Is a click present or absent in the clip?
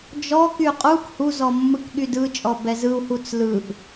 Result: absent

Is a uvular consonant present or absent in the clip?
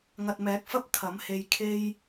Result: absent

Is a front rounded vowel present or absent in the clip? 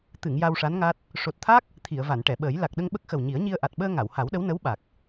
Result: absent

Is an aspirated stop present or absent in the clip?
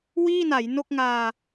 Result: absent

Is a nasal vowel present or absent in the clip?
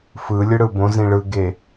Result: present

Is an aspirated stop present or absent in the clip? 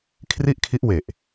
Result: present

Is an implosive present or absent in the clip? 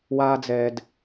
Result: absent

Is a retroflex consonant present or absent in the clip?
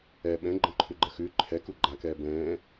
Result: absent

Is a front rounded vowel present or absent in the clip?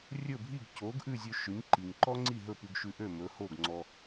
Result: present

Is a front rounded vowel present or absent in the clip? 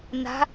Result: absent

